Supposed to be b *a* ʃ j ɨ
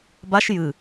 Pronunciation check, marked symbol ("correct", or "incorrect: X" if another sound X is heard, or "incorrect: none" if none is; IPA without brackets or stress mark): correct